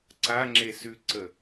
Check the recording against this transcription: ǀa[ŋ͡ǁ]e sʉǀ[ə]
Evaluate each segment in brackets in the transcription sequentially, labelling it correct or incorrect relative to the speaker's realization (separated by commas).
correct, correct